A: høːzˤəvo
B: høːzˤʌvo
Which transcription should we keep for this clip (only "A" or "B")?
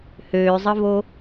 A